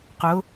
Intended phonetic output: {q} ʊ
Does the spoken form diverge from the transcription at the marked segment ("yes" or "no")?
no